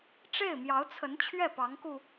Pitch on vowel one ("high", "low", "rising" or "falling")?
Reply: falling